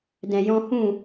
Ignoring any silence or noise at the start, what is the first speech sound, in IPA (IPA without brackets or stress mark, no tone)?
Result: d